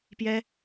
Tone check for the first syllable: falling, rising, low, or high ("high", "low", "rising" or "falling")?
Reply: high